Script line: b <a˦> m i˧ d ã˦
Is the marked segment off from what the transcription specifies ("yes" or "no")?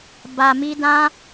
yes